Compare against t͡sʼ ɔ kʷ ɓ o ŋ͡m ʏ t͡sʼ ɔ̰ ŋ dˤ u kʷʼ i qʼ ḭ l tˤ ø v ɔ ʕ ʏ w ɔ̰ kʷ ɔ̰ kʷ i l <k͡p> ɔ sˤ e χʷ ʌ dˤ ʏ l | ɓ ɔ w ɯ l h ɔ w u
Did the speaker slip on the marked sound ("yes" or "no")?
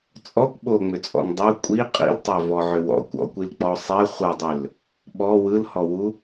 no